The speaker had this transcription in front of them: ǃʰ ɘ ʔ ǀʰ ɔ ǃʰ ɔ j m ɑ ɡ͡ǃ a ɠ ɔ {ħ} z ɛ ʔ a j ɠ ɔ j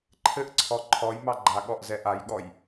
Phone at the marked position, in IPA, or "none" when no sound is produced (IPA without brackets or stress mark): ʔ